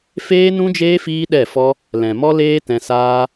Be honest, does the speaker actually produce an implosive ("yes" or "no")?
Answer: yes